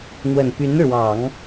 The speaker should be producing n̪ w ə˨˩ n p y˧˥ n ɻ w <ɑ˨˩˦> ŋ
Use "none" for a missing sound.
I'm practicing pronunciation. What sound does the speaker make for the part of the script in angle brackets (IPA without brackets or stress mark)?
ɑ˨˩˦